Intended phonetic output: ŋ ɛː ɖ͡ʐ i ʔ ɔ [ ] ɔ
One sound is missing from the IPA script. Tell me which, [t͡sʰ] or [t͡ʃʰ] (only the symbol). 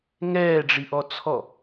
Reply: t͡sʰ